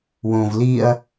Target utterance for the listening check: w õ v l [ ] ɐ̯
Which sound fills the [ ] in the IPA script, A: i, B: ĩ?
A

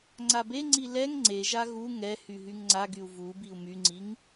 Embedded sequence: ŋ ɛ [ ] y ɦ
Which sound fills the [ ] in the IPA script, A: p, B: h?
B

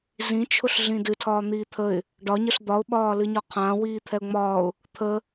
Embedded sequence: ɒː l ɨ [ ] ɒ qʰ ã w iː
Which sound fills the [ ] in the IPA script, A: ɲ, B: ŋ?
A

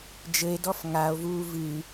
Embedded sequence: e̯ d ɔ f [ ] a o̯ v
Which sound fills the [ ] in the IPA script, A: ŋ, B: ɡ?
A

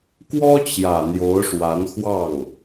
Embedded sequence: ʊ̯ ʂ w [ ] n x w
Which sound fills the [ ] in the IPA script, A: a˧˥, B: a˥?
A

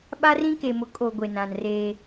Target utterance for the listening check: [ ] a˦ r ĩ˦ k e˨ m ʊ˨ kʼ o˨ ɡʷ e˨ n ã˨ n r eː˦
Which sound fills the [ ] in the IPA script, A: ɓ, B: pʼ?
A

